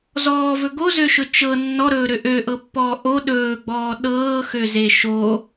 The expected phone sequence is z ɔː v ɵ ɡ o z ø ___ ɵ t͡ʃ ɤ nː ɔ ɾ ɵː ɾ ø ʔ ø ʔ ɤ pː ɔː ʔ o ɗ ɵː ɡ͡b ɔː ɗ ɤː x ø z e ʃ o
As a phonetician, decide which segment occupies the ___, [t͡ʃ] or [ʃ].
ʃ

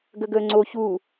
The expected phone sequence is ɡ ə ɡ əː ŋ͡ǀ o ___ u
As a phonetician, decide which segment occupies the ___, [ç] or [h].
ç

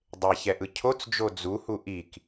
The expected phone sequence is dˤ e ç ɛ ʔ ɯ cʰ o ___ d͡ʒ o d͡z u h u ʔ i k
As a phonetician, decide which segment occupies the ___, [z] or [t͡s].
t͡s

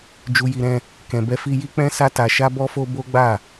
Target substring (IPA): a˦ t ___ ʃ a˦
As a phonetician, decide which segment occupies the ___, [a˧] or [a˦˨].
a˧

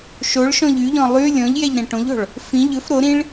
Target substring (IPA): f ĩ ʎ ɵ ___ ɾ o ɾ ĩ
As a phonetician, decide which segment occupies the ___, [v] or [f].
f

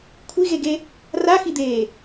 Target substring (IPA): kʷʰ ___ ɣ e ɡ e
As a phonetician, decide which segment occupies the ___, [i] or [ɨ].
i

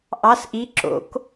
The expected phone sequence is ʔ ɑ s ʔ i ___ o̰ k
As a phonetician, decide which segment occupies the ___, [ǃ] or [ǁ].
ǁ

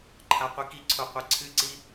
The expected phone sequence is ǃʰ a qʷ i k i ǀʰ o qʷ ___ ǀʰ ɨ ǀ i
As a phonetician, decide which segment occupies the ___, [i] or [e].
e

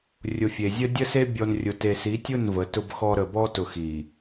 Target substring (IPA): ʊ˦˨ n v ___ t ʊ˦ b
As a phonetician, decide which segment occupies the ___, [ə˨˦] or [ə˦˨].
ə˨˦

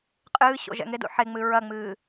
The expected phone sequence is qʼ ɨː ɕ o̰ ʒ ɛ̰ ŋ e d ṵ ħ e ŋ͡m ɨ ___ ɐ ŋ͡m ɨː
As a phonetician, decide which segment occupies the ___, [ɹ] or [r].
ɹ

